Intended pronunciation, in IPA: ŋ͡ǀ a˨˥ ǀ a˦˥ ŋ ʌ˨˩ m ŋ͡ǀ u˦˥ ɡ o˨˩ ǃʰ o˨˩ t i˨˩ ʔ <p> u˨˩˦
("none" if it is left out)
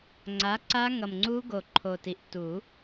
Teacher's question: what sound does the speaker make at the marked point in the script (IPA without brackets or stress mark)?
t